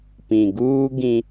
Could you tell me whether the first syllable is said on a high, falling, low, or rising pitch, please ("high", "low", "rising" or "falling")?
low